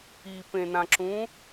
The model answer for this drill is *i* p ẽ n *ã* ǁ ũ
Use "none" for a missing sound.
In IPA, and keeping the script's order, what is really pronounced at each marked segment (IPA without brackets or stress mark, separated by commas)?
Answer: i, ã